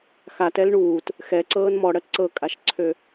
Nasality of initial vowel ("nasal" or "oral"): oral